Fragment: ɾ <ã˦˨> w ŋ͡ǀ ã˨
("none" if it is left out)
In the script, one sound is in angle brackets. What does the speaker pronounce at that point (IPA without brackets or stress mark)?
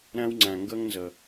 ã˦